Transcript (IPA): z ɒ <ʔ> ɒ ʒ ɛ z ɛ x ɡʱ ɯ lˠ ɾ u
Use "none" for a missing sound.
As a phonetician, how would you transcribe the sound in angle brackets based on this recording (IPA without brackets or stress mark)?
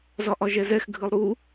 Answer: ʔ